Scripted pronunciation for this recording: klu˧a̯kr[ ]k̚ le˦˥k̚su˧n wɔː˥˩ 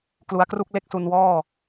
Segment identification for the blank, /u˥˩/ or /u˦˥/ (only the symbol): u˥˩